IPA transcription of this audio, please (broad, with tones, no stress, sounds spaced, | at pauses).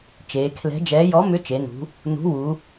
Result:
t͡ʃ eː˩˧ kʰ l ɛ̤˨˥ d͡ʒ ɛː˨˥ j ɔ˨˥ m ʏ˨˥ t͡ʃ e˩˧ n ṳ˩˧ | n ṳ˨˥ w u˩˧